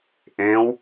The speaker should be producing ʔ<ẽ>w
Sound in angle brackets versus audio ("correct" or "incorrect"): correct